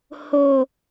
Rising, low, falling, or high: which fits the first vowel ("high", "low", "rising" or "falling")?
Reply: high